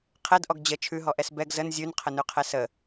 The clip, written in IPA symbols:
qʰ ɛ d ʔ ɔ ɡ d͡ʑ ə t͡ʃʰ ʉ ɦ ɔ ʔ ɛ s b ɛ ɡ z ə n zʲ ʉ n qʰ ə n ʉ qʰ ɛ s ə

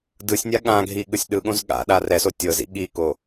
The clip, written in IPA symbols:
d ɯ sʲ nʲ a ɠ ã ɡʱ i ɠ ɯ sʲ ɗ ɯ ɠ õ z ɠ a̰ ɗ a r ɛ s o tʲ ɤ z ḭ ɠ i k o

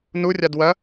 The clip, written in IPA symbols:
n u rʲ a d w ɐ

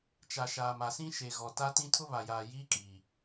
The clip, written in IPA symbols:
t͡ʃ a˨ ʃ aː˨ m a˨ s ĩ˦ ʃ e˨ ɣ ɔ˨ t a˦ t ĩ˦ tʰ ʊ˦ β a˨ j aː˨ j iː˦ kʼ iː˨

